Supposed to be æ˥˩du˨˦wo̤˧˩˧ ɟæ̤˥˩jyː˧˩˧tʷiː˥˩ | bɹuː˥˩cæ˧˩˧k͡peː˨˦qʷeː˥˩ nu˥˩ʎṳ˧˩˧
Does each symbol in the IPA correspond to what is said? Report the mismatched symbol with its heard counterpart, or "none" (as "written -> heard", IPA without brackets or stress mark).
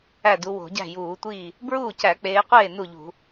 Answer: yː˧˩˧ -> uː˧˩˧